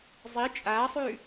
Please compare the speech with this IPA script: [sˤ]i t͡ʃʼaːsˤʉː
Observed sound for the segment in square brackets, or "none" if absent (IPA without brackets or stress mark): zˤ